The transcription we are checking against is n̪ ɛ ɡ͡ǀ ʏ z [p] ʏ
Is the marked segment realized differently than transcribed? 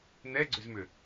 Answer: yes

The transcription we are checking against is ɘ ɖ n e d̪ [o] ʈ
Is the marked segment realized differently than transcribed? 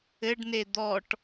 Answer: yes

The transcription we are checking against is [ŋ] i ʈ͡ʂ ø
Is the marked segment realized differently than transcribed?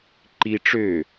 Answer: yes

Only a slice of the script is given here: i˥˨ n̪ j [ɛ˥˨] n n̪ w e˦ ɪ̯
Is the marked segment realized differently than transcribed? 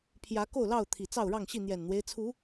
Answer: yes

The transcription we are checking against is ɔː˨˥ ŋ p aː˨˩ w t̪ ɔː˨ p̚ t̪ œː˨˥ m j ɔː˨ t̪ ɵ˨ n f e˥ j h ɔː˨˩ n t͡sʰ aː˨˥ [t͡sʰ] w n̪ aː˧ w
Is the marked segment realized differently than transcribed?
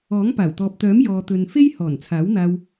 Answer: yes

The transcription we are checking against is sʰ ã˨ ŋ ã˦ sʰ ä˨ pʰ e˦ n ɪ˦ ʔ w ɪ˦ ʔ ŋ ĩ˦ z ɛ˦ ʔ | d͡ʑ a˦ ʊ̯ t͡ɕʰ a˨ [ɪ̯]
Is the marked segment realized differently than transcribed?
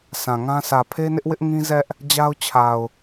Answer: yes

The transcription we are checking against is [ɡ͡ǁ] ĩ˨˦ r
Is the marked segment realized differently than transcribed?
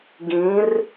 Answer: yes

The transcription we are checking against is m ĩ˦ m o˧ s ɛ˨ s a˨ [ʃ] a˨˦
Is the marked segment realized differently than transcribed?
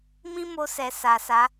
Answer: yes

